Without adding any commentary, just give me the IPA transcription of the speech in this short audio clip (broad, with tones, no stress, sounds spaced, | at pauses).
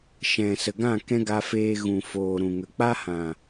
ʃ ɛ̃˨ s ə˨ ɡ ã˦˨ k ɛ̃˦ ɡ a˧ f eː˧ ɣ ũ˨ f oː˨ ɾ ũ˨ ŋ ə˨ k͡p a˦ h ã˨